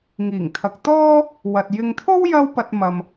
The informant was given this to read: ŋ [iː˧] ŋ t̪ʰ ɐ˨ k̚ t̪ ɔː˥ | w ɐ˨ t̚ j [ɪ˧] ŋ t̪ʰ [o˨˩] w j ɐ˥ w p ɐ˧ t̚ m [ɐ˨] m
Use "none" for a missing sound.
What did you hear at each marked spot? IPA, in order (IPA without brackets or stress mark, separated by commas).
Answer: iː˨˩, ɪ˧, o˥, ɐ˨